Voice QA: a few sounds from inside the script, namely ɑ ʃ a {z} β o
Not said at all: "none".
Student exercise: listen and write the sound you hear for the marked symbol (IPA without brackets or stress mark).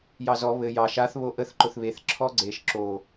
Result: θ